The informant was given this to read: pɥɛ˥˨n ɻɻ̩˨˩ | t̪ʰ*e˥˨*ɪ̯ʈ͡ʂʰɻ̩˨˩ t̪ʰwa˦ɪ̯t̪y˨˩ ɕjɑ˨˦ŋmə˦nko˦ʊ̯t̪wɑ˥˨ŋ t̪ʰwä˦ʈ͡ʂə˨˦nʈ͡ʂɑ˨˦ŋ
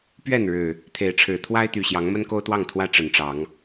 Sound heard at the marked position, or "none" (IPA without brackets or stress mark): e˨˦